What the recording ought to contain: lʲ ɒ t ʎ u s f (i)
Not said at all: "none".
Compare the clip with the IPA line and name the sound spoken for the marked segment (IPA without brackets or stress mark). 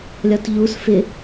ɪ